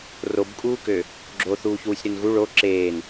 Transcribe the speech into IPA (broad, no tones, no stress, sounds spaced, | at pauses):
r o b kʼ uː k ø | ɡ͡ǁ o θ uː ç w u sʲ ɾ ø n ɣ u ɭ o ǁ eː n